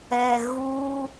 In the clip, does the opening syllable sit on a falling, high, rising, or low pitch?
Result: low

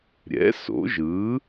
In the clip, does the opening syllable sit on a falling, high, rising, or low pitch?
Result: rising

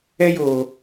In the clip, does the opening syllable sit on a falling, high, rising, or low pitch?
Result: high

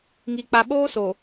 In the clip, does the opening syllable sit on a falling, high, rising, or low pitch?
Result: low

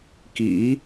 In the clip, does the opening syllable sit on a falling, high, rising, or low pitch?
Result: rising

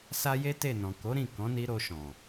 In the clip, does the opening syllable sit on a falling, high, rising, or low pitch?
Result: high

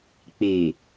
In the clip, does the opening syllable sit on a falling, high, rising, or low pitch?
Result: low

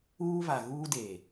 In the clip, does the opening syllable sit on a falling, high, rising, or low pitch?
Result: high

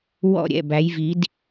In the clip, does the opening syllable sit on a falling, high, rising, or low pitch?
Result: falling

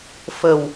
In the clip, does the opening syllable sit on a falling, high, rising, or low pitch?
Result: low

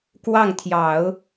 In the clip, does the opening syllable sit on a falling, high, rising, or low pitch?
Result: falling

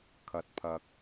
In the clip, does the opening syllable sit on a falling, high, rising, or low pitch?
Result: low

